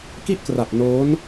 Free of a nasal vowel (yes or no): yes